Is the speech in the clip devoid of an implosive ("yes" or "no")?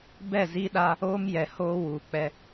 no